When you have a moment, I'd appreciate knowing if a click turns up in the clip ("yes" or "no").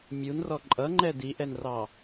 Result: yes